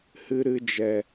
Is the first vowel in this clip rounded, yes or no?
no